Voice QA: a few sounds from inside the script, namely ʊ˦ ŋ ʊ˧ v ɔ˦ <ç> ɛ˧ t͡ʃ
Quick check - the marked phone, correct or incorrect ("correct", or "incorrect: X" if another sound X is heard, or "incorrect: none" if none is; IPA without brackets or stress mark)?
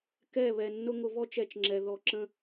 incorrect: t͡ʃ